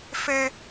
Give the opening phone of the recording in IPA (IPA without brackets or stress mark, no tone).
f